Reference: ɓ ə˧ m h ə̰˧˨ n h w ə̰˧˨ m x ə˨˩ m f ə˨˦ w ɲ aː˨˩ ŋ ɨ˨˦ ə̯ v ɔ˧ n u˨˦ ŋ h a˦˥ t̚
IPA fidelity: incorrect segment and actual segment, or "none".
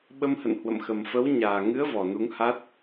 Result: ɔ˧ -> ɔ˨˩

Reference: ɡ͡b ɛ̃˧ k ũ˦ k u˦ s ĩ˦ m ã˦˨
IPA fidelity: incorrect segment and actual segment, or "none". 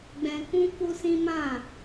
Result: none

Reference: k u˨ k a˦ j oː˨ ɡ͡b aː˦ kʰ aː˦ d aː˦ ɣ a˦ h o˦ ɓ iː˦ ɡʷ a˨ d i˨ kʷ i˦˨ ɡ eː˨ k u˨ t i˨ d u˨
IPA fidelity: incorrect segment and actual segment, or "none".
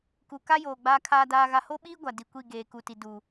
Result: none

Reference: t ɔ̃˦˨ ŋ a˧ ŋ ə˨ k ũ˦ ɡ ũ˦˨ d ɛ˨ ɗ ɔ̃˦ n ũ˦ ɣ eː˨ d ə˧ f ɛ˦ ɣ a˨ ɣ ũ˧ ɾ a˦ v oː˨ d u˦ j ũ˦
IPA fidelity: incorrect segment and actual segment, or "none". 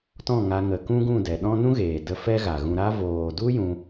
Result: none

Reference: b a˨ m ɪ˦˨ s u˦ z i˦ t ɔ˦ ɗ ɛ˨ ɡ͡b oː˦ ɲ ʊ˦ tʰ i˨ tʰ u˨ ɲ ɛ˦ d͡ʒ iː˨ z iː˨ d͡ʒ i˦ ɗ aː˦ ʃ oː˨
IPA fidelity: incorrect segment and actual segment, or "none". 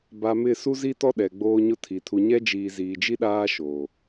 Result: none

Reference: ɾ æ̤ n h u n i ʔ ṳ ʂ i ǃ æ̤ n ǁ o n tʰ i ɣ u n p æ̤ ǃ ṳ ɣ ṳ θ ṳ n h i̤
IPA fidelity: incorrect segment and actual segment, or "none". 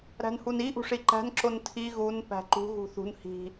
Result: none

